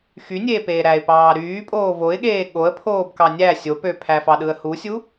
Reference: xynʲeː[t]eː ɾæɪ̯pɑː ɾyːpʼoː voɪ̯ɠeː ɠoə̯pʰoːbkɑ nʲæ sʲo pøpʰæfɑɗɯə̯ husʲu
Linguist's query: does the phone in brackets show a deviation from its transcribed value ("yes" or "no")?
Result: yes